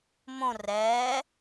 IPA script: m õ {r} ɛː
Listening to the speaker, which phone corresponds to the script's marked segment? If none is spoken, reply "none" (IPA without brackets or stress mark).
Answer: r